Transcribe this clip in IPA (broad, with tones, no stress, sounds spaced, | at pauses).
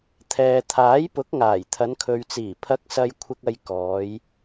t̪ʰ ɛː˨ t̪ʰ aː˨˥ j p ʊ˨˥ k̚ ŋ aː˨˩ j t̪ʰ ɐ˨˧ n kʰ ɵ˨ ɥ t͡s iː˨˩ pʰ ɐ˨˥ k̚ s ɐ˨ j kʷʰ ɪ˨ k̚ ɐ˨ j k ɔː˨˧ j